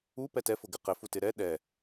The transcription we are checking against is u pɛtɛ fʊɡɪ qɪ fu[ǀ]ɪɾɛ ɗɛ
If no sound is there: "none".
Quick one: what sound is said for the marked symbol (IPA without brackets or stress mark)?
t